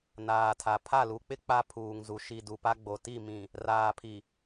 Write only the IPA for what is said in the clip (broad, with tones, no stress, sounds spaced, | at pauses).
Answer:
n aː˨ tʰ a˨ pʰ a˦˨ l u˨ k͡p ɪ˦ k͡p a˦ pʰ uː˨ ŋ z u˨ ʃ i˨ d u˨ p a˦ ɡ͡b o˨ t i˦˨ m ĩ˨ | r aː˨ pʰ i˨